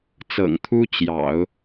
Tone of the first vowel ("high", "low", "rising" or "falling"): low